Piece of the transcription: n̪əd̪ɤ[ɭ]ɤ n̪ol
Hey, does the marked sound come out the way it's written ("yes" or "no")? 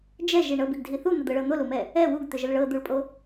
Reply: yes